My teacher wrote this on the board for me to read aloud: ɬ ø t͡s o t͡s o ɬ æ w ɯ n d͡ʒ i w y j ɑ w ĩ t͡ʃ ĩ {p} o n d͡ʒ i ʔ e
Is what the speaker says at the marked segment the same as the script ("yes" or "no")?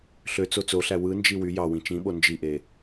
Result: no